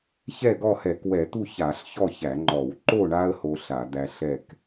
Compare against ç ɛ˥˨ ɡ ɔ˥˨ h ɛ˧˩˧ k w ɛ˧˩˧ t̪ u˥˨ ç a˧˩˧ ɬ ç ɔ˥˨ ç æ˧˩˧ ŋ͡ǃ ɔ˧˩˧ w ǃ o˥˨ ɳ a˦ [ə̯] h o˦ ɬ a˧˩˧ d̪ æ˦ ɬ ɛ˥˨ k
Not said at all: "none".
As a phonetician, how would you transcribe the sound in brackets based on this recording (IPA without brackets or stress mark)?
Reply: ə̯